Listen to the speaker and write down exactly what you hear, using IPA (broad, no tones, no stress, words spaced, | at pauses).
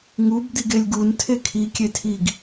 ŋub d̪iɡelʲɡun tʰekʰi kʲetʰiɡ